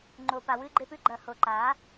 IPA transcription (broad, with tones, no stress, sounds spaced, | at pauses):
ŋ͡ǃ o˨ p a˨ w ɨ˧ ɡ͡ǃ e˧ p ʉ˦ ɡ͡ǃ ɐ˨ h o˨ ǃ a˨˦